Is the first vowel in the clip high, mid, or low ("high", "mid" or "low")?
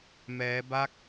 mid